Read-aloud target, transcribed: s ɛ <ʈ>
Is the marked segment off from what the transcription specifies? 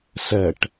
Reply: no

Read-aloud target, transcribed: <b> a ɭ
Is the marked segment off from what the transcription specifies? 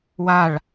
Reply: yes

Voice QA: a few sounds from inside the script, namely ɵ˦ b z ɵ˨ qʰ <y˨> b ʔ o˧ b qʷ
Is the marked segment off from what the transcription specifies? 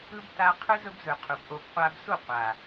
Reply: yes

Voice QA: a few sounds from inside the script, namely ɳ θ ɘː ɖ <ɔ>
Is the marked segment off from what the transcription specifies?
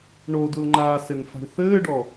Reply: no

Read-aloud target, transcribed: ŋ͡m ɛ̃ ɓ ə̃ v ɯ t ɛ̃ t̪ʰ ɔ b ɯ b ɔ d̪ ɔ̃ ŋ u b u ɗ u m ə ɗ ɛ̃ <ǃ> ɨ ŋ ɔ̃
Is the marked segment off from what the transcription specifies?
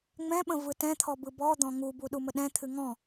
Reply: yes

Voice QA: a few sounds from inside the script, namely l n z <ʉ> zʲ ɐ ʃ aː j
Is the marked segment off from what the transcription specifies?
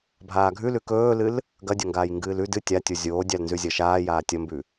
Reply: no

